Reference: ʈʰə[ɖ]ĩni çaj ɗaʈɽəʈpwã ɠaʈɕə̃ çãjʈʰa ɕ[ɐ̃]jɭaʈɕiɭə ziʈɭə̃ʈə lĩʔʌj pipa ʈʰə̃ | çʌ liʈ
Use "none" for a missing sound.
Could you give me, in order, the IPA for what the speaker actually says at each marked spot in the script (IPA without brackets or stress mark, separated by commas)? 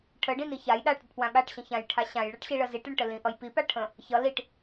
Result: ɖ, ã